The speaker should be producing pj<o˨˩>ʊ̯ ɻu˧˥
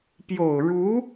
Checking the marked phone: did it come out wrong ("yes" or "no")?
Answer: no